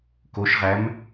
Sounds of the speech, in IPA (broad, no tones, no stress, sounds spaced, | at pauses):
k o ʃ ʁ æ m